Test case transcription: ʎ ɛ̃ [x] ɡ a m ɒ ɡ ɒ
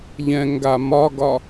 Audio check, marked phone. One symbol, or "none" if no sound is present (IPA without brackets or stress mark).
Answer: ŋ